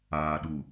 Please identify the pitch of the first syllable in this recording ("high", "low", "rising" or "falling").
low